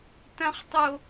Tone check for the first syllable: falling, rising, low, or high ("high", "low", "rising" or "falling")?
low